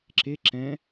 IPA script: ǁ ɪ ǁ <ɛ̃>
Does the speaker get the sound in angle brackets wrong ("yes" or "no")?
no